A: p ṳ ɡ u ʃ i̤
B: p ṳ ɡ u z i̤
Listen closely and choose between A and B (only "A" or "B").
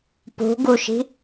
A